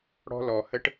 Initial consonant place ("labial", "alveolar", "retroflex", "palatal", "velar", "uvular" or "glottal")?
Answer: retroflex